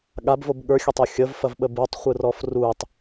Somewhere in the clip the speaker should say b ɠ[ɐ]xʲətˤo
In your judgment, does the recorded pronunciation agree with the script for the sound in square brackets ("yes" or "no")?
no